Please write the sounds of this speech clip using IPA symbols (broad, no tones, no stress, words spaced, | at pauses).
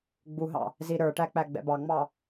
ɡ͡buɦɑ̰ | ziɾə˞ʈæ k͡pæɡ͡bɛ̰bɑŋ͡mɑ